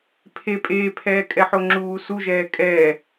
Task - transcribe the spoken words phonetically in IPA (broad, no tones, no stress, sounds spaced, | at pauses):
pʰ e pʼ eː pʰ ɛː kʼ ɛ ħ o ŋ͡ǁ uː s u ʒ ɛː kʼ ɛː